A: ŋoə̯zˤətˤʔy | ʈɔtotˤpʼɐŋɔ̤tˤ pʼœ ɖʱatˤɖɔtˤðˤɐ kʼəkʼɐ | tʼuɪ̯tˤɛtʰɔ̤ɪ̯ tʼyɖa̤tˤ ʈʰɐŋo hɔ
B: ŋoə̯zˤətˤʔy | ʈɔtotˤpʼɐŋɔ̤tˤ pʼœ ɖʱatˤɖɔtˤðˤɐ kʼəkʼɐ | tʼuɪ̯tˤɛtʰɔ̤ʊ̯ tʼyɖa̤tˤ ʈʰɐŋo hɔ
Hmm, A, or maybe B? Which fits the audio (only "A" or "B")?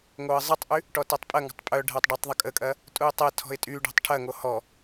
A